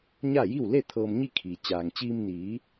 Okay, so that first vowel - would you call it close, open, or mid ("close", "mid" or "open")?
open